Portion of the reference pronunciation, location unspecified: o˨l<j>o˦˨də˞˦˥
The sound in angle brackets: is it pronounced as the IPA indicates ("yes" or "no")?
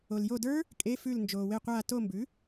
yes